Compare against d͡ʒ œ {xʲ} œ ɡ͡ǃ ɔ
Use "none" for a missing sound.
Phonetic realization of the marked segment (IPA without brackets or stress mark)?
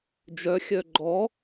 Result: xʲ